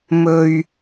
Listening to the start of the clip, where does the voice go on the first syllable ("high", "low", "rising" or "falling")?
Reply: low